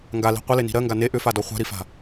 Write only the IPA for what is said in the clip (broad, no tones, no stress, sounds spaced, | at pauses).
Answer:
ŋ ɡ a l i̤ qʷ ɪ l e n i̤ ɾ ɜ ŋ ɡ a n e ʔ ʏ f a d ɔ χʷ a̤ ɾ i f a̤